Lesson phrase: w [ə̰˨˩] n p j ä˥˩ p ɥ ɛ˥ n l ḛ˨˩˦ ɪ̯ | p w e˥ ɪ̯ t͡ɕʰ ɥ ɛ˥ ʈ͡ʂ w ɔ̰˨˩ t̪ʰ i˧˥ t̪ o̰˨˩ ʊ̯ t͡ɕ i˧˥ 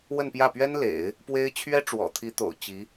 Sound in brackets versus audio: incorrect: ə˥˧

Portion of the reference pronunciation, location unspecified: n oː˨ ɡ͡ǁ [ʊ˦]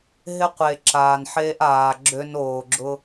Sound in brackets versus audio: correct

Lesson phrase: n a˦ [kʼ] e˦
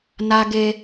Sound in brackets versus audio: incorrect: ɡ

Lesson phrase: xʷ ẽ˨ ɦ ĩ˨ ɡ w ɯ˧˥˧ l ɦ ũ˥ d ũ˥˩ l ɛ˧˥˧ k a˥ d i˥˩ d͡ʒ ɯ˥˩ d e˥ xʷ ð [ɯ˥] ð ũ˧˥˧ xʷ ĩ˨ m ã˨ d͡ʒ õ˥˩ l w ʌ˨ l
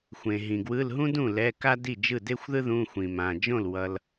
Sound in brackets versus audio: correct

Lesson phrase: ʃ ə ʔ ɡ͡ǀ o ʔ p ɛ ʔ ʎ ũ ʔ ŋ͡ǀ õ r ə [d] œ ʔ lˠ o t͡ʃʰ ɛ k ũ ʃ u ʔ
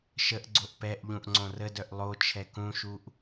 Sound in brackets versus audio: correct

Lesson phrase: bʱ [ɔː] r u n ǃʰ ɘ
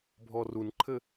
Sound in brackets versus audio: incorrect: ɔ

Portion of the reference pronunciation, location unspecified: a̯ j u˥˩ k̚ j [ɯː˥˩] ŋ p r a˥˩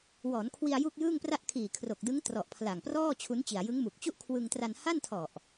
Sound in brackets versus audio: correct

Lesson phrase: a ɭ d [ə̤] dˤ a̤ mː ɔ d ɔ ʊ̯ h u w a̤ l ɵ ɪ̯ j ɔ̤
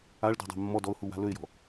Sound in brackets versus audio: incorrect: ɔ̤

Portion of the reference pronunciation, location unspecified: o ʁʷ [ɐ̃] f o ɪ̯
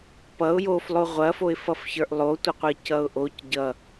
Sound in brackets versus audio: incorrect: ɐ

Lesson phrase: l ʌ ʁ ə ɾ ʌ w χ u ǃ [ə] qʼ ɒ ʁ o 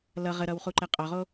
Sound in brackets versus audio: incorrect: ɛ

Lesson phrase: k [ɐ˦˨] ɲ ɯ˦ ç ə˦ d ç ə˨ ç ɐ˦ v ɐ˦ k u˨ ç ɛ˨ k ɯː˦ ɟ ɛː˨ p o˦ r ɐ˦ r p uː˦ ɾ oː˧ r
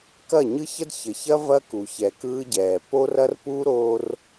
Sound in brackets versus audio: correct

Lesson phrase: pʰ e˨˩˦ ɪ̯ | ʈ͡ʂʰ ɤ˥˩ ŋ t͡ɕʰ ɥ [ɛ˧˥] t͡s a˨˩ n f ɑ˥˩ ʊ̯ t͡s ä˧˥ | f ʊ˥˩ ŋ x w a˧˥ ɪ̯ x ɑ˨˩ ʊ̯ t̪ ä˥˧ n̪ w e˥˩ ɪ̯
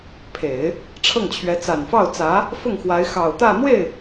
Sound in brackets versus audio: correct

